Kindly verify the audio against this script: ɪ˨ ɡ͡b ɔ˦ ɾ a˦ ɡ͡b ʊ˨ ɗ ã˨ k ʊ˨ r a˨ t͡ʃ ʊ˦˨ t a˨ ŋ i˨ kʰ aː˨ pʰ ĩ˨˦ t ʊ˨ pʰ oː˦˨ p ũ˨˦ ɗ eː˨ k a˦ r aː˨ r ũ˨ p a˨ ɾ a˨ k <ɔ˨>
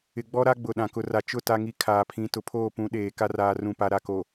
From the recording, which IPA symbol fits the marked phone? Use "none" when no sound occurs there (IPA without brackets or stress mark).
o˨